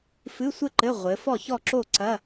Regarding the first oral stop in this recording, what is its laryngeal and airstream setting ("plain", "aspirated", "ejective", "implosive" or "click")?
click